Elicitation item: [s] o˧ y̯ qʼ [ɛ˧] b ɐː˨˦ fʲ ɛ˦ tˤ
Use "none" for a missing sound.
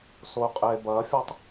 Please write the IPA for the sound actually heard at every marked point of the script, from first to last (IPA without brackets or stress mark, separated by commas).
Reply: s, e˧